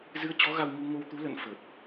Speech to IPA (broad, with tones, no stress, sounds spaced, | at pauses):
z ɨ˨˦ ə̯ t͡ɕ ɔ˨˦ ɣ a˧ w ɲ u˧ ŋ o˧ w t̪ u˨˦ l ə̰˧˨ n f ə˨˩ t̚